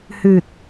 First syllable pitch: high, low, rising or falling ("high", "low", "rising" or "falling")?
low